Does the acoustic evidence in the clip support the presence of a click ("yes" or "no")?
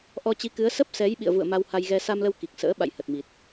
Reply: no